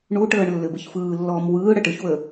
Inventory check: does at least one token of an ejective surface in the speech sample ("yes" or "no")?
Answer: no